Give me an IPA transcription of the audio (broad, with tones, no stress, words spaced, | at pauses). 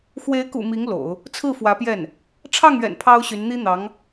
xwe˧˥ɪ̯kṵ˨˩ mi˧˥ŋ lo̰˨˩˦ʊ̯ | t͡sʰɹ̩˥˩fwä˧˥pjɛ˥˩n | ʈ͡ʂʰɑ˥˩ŋɥɛ̰˨˩n pʰɑ˥ʊ̯ɕy˧˥n n̪i˥n̪ɑ˧˥ŋ